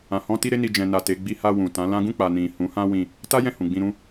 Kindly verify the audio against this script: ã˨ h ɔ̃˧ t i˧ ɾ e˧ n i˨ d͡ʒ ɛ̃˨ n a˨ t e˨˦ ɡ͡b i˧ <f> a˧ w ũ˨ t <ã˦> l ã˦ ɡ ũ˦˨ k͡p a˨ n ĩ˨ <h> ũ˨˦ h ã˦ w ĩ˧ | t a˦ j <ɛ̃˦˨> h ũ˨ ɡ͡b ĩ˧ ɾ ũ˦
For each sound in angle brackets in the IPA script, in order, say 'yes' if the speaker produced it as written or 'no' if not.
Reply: no, no, yes, yes

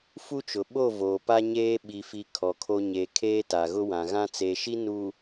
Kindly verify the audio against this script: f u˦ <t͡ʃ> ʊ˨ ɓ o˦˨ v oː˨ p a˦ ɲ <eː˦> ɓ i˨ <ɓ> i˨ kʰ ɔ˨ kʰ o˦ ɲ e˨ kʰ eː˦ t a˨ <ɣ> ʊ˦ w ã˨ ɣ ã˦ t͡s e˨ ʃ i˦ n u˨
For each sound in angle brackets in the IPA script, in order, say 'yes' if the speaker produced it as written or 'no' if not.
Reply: yes, yes, no, yes

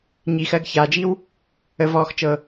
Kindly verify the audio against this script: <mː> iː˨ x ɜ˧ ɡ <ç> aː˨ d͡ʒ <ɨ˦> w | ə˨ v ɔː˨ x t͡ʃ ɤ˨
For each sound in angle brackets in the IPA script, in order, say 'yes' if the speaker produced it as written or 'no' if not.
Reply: no, yes, no

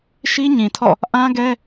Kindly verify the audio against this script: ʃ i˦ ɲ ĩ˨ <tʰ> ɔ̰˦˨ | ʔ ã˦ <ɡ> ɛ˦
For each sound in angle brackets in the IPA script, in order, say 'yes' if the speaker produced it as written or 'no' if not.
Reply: yes, yes

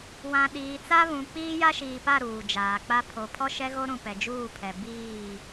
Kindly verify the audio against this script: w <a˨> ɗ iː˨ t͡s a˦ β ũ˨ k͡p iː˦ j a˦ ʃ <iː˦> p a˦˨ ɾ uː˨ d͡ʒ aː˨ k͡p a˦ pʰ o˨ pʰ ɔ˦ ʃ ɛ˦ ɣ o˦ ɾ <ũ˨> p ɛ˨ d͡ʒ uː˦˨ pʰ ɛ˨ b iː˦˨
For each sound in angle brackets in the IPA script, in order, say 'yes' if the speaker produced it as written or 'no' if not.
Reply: no, no, yes

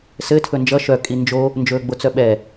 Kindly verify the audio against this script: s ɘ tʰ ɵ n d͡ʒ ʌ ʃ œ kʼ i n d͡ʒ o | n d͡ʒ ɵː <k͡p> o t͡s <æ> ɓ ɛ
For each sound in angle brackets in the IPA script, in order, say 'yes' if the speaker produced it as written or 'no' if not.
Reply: no, no

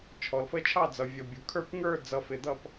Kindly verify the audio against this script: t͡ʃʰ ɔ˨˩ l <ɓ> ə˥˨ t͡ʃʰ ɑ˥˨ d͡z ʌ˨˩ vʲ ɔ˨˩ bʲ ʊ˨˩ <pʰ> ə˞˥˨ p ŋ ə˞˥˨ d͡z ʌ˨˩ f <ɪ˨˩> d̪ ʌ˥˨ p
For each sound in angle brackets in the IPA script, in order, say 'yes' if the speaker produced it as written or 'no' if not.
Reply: no, no, yes

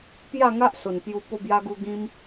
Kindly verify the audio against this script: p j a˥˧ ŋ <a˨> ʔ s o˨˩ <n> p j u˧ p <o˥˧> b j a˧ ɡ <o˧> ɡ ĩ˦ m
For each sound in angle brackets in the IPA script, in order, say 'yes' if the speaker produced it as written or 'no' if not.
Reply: no, yes, no, no

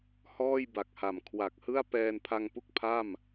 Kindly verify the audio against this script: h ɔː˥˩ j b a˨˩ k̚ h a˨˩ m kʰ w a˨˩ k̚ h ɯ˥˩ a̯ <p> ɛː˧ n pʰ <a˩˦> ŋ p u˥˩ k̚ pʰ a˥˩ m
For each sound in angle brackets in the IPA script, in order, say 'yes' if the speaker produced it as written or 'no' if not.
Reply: yes, no

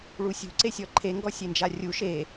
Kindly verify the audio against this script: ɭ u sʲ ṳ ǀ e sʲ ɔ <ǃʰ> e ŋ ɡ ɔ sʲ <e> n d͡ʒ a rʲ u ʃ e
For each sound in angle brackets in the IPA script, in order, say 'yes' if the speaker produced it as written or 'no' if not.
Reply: yes, yes

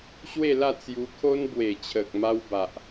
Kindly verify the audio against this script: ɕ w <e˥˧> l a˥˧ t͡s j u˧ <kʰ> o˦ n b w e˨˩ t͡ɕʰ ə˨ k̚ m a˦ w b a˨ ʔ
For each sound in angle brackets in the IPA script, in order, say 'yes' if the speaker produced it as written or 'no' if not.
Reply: yes, yes

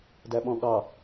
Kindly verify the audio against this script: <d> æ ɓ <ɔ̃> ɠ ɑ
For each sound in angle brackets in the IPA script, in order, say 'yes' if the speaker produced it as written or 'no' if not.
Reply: yes, yes

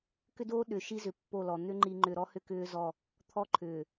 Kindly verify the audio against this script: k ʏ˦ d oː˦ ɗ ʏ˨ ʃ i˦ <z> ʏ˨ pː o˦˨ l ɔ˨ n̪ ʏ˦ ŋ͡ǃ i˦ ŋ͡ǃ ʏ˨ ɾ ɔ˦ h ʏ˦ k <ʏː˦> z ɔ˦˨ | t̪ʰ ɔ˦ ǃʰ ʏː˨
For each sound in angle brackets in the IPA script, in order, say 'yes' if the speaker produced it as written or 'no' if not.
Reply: yes, yes

